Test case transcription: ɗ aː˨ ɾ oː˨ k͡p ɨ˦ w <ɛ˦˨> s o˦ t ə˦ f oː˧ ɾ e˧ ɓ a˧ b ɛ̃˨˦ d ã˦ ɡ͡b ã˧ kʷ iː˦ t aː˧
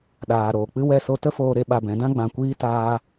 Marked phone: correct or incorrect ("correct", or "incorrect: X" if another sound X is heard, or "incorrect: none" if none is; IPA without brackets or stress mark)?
correct